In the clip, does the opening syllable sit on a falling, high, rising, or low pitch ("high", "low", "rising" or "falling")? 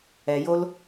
low